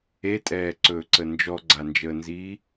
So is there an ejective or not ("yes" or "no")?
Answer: yes